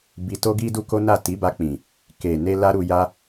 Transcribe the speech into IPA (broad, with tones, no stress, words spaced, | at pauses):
bi˧to˦ɡi˦ du˦ko˦na˦˨ ti˨˦ba˧k͡pĩ˨ | ke˨ne˧ la˦ɾu˧ja˦